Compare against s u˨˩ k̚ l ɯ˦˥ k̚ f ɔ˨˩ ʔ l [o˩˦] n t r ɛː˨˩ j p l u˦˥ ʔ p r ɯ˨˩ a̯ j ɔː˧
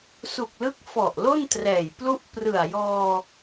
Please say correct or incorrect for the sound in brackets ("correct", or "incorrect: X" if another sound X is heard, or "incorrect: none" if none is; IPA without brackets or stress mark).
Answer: incorrect: o˥˩